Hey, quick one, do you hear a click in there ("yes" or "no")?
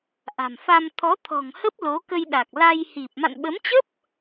no